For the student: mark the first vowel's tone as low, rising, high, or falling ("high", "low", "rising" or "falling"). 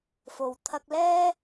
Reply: low